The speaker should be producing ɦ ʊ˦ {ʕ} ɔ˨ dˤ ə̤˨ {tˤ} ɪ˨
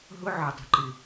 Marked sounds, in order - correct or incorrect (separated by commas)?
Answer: correct, incorrect